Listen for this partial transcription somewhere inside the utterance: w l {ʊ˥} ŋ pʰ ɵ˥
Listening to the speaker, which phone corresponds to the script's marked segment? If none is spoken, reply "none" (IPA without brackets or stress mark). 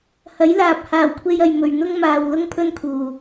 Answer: ʊ˥